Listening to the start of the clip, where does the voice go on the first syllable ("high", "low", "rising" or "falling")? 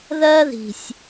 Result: high